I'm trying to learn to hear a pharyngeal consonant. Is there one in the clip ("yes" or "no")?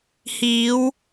no